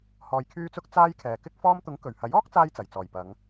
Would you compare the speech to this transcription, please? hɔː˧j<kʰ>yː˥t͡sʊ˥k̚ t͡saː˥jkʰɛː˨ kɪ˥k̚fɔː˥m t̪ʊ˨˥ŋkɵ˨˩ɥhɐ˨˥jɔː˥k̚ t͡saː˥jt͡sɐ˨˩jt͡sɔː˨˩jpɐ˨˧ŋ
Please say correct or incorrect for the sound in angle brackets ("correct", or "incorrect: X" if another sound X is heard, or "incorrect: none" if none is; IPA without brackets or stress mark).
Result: correct